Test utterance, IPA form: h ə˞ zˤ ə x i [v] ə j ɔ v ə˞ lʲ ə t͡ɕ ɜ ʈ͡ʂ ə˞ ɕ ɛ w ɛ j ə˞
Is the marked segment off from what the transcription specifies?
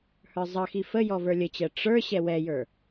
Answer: yes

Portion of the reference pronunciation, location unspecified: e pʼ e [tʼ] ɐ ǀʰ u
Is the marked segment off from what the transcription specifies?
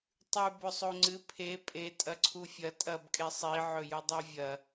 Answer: no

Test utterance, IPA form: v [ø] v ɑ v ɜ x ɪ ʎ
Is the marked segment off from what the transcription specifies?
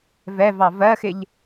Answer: yes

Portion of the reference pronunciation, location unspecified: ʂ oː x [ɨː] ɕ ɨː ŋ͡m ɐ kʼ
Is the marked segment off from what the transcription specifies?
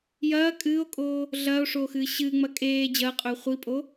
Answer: no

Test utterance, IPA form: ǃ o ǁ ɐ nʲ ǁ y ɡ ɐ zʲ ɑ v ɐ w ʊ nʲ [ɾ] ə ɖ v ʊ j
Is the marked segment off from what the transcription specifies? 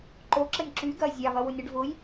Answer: no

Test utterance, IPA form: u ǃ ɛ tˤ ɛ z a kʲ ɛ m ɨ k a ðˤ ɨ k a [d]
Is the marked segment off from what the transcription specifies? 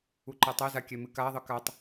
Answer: yes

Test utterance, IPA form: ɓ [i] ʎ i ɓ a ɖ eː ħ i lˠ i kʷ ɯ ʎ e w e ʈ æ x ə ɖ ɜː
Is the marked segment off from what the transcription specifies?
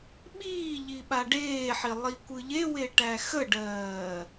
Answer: yes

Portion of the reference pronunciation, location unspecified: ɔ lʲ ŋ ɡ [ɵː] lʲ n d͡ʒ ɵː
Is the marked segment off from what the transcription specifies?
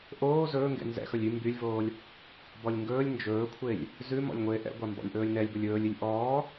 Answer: no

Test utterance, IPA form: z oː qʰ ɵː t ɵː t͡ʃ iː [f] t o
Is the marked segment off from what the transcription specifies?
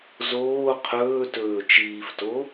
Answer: no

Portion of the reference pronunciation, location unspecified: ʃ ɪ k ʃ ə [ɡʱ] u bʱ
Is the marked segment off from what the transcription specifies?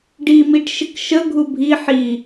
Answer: no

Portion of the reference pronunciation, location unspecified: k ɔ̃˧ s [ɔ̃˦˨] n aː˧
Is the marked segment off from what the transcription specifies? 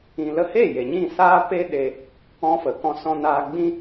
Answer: yes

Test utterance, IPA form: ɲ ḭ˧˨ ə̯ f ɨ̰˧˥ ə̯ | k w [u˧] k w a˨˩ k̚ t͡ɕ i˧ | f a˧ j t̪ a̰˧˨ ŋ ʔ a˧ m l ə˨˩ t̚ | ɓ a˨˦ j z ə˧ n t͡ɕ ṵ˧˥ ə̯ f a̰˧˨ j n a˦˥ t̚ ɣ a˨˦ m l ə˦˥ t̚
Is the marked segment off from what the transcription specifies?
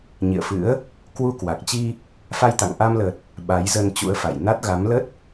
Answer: no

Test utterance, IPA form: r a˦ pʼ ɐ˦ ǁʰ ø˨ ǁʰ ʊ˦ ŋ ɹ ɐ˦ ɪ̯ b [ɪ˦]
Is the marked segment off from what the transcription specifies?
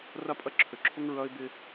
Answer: no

